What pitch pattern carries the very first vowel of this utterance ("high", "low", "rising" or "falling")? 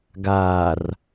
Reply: low